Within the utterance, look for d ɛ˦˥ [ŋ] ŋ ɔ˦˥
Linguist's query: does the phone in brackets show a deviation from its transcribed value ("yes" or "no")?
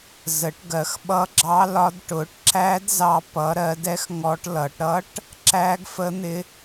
yes